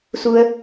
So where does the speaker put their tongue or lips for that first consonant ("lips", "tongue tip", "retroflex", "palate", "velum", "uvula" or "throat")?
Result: tongue tip